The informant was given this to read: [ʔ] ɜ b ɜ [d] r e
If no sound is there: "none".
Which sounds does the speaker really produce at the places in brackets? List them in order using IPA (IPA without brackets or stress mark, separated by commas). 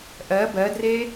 ʔ, d